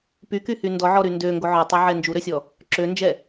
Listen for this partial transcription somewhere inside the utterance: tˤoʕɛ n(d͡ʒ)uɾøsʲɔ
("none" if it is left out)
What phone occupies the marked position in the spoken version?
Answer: d͡ʒ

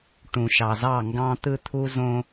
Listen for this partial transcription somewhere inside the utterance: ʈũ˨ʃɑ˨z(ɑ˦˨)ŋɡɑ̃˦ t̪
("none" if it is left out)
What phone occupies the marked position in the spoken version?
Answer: ɑ˦˨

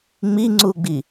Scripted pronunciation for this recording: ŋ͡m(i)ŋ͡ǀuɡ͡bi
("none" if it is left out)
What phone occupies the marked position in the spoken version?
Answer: i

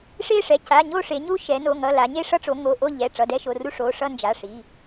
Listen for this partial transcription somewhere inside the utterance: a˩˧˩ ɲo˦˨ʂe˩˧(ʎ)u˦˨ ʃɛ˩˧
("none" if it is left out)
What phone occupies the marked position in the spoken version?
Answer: ɲ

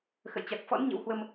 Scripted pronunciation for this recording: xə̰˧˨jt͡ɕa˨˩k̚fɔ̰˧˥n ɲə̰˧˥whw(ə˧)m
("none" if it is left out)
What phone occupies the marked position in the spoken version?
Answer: ə˧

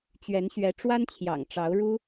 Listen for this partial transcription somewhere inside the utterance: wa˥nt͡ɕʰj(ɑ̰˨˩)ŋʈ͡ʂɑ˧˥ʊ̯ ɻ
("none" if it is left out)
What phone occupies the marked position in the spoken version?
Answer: ɑ̰˨˩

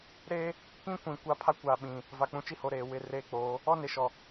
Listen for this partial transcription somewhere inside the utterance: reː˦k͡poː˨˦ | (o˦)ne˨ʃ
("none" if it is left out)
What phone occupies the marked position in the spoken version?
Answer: ɔ˦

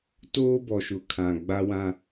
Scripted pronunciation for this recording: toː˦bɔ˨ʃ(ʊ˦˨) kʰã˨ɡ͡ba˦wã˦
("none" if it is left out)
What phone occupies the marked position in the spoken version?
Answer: ʊ˨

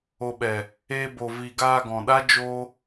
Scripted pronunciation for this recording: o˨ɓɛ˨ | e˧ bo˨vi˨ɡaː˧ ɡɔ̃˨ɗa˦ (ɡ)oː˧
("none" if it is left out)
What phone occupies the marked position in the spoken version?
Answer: d͡ʒ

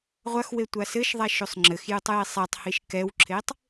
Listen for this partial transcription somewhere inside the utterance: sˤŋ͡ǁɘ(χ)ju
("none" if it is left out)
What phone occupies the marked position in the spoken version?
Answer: x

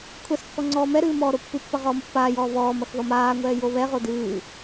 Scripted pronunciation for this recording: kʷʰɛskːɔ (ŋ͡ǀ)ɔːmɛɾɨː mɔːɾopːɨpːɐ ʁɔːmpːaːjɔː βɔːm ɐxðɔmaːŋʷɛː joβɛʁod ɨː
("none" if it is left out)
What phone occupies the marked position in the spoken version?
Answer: ŋ͡ǀ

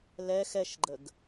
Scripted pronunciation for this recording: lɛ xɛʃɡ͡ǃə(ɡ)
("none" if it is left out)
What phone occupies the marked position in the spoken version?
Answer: ɡ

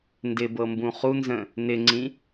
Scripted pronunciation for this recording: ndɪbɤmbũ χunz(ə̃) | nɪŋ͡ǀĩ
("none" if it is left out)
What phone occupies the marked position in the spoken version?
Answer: ə̃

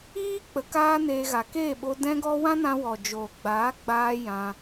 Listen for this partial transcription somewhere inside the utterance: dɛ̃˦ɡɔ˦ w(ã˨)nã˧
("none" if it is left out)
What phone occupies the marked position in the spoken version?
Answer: ã˦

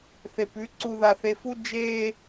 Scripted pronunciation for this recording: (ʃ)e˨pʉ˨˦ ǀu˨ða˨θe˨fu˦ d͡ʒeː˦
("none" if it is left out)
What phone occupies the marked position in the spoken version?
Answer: θ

